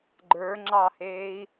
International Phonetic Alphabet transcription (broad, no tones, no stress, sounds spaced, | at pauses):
ɡ͡ǃ ə˞ ŋ͡ǁ ɑ h eː i̯